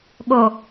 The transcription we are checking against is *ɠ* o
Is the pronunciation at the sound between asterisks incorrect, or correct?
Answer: correct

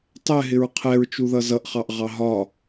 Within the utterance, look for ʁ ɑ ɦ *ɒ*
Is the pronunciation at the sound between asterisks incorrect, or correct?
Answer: correct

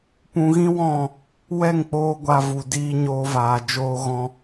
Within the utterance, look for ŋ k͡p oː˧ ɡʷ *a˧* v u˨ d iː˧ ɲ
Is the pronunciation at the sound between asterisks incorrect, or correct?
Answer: correct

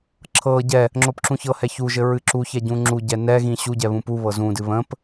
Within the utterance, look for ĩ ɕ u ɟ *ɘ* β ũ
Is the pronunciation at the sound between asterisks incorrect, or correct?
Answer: incorrect: ɛ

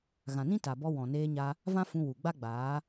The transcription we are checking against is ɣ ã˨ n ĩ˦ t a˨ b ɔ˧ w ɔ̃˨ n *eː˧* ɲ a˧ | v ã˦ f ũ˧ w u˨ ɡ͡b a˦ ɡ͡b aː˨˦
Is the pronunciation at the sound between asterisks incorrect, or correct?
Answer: correct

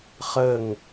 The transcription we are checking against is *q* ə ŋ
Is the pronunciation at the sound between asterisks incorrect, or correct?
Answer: incorrect: χ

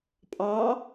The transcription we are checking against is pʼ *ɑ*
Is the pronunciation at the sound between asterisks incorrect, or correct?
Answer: correct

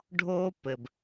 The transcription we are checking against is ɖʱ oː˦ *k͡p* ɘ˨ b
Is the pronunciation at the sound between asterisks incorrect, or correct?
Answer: incorrect: p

